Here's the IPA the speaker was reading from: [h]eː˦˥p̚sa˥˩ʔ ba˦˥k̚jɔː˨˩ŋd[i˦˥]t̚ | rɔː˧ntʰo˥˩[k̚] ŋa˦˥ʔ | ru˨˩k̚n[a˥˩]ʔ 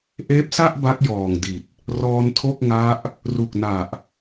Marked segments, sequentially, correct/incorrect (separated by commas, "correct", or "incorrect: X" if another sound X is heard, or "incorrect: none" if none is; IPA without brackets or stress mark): incorrect: ʔ, incorrect: i˨˩, correct, incorrect: a˨˩